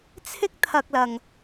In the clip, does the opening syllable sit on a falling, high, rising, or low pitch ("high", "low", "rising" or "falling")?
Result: high